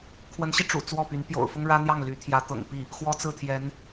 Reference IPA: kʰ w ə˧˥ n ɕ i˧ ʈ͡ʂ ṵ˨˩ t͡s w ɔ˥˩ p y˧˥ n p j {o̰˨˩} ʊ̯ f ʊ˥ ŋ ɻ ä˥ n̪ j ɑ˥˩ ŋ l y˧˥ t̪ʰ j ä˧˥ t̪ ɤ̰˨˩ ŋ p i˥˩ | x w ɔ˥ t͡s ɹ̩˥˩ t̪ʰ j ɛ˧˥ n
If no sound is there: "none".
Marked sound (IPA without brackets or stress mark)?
o̰˨˩